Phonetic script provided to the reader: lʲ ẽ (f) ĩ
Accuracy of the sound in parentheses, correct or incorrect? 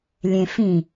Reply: correct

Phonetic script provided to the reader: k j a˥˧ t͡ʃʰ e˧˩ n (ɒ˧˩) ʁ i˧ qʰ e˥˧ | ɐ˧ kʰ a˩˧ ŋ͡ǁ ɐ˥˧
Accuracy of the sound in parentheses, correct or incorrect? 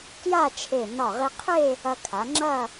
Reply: correct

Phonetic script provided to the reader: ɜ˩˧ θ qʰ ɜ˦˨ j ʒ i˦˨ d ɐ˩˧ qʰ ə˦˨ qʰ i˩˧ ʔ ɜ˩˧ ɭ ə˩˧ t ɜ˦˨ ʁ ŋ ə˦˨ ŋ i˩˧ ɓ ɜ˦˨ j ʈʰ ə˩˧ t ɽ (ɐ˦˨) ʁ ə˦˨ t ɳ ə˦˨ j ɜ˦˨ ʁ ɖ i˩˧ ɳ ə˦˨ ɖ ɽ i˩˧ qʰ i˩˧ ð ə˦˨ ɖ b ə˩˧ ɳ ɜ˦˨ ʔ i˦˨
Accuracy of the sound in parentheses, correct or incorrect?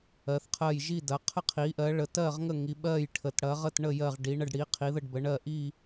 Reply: incorrect: ɐ˩˧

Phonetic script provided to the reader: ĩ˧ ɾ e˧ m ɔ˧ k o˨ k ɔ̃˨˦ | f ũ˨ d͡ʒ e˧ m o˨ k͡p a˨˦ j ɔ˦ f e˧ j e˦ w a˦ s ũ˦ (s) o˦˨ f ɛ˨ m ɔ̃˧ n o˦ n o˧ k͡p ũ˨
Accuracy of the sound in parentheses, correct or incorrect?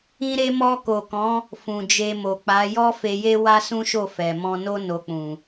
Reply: incorrect: ʃ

